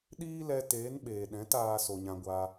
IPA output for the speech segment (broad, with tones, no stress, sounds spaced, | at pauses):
ɗ iː˦ l ɛ˧ t eː˨˦ n ɓ eː˨ ɗ ɛ̃˨˦ t aː˧ s o˨ ɲ ã˧ ɡʷ aː˧